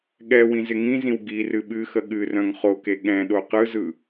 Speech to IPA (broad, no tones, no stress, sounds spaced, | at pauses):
ɠ ɛ w ĩ z ɪ ŋ ĩ z ĩ w ɡ i r ɨ ɓ ɨ x ə ɠ ɨ r œ̃ ŋ χ o k e ɠ ɛ̃ ɗ o q ɯ z ɯ